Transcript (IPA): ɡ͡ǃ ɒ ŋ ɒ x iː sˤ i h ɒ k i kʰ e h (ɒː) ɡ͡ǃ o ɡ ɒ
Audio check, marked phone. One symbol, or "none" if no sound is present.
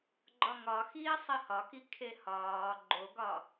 ɒː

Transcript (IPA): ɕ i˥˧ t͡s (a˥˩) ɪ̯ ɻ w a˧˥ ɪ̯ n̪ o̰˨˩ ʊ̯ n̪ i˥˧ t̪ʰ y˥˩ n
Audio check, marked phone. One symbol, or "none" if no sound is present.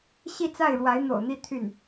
a˥˩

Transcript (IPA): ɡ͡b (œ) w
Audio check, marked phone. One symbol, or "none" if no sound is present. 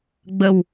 ə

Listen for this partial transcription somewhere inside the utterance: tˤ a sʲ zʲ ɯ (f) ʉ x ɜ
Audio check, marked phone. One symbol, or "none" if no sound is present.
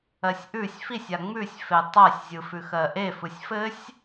f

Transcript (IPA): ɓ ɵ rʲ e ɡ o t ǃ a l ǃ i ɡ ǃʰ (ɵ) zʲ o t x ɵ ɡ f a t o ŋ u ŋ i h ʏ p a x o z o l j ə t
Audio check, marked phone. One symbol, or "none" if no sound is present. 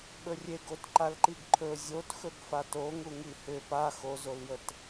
ɵ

